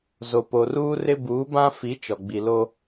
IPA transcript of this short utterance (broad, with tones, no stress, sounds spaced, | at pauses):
z o˨ p o˨ r uː˦ r ɪ˦ b uː˨˦ b ã˦ f i˨˦ t͡ʃ ɔ˨ ɡ͡b i˨ l o˦